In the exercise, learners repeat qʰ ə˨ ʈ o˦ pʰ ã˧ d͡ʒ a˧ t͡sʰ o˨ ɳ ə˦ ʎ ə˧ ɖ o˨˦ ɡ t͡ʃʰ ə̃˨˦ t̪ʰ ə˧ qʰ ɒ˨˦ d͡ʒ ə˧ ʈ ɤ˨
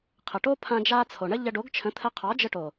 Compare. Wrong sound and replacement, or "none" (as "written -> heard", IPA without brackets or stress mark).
ɤ˨ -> o˨